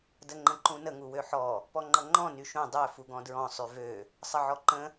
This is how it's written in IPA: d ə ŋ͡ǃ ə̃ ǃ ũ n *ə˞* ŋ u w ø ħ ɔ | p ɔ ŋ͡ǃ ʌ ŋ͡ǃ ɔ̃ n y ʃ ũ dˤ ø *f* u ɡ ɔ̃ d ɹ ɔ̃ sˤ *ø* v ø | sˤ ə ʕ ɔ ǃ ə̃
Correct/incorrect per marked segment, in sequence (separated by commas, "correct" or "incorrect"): incorrect, correct, incorrect